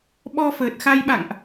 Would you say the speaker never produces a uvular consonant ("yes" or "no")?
yes